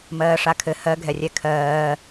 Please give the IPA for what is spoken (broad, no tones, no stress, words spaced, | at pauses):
mɜːʂakʰɘ hɜɡʱɛrʲɛ kʰɜː